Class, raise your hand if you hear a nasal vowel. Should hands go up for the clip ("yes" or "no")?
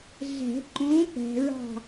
yes